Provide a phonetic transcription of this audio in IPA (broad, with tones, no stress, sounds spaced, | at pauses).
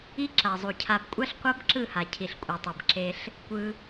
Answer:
i˦ ǁ a˨ zˤ u˨ cʰ a˧ b kʷʼ a˦ ɬ qʷ a˦ b ǁ ɯ˦˨ h a˨ cʰ i˨ ɬ kʷʼ ɛ˨ tˤ ɛ˨ b ǁ e˧ ɬ | kʷ ɯ˧